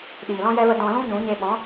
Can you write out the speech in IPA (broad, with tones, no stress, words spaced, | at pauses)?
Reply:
ɗiː˨lɔ̃˦ jɛ˧və˧ dɔ̃˧lũ˦ɲũ˨˦ɲe˧ ɓɔ̃˨˦